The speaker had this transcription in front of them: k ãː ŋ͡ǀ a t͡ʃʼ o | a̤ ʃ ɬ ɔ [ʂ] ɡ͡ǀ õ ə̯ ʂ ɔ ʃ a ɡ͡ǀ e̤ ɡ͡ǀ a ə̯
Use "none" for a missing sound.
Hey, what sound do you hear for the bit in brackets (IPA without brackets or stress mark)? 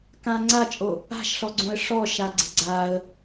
none